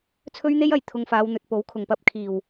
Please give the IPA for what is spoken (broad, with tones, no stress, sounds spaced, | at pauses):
t͡sʰ ɵ˥ ɥ n̪ e˥ j ɐ˨ j t̪ʰ ʊ˧ ŋ f aː˨˧ w n̪ ɵ˨ t̚ p o˨˥ w kʰ ʊ˨ ŋ p ɐ˧ p̚ kʰ iː˨˩ w